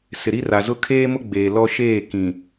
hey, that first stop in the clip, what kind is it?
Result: aspirated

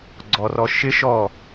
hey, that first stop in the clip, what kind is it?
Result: click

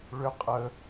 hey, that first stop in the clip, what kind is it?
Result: ejective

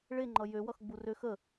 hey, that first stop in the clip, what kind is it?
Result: click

